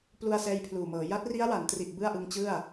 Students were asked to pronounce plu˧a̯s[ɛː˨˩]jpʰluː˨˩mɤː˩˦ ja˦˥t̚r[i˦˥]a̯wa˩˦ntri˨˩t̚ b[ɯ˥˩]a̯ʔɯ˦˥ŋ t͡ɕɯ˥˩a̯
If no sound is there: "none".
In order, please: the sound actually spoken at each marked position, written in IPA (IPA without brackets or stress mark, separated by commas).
ɛː˧, i˦˥, ɯ˥˩